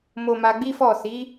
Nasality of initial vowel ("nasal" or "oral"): oral